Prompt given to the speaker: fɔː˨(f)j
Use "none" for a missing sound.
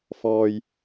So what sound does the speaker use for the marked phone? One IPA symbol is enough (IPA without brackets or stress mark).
none